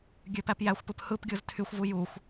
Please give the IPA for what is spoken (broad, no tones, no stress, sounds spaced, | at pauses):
ɡʲ ø p æ p j æ xʷ p ɯ p h ɯ p ɡʲ ɯ z tʰ y xʷ v u j u xʷ